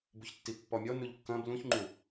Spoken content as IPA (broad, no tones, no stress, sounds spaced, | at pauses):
b u ç tː i pː ɔ mʲ ɔ n u ʎ kː ɐ̃ b l ũ ç ŋ͡ǃ u